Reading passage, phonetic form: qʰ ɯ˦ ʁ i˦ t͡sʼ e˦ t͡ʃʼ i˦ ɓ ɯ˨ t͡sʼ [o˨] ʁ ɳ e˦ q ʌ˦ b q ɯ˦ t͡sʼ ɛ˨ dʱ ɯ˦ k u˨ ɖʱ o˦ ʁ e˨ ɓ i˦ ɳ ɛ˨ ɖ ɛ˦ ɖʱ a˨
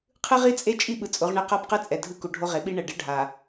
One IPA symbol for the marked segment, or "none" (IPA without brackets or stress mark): o˨˦